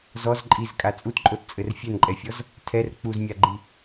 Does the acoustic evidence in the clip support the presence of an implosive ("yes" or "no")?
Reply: no